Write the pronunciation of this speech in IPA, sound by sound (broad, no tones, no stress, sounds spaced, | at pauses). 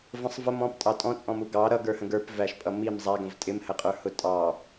v ə̃ sˤ v ə m ɔ̃ p tʼ ɑ tʼ ɔ̃ t͡sʼ ɔ̃ m u ɡ ɑ ɾ ʌ ɡ ə˞ h ə̃ ɡ ə˞ p v æ ʃ pʼ ʌ m i m zˤ æ ɡ ə̃ v tʼ ɪ m h ə qʼ ə˞ h ʊ tʼ ɑ